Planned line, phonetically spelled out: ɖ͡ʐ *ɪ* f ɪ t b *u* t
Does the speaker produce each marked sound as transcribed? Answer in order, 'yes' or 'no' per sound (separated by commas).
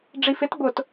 no, no